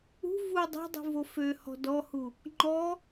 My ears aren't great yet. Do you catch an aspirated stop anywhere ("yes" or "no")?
no